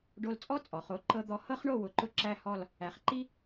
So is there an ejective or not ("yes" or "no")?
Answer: yes